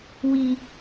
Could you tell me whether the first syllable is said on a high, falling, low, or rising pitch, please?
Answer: low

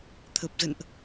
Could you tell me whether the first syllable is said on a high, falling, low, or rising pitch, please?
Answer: low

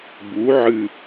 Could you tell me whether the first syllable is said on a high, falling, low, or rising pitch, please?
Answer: rising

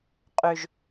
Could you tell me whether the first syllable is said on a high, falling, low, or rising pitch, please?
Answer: low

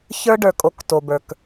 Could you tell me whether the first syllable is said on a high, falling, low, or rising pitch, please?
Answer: high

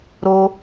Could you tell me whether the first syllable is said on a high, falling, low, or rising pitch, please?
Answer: high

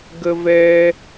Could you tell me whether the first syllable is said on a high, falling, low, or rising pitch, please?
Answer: high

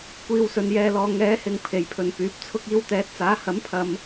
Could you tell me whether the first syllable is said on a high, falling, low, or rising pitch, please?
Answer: low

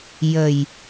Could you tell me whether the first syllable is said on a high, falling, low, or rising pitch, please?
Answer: low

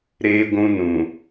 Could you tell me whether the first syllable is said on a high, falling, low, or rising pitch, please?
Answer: high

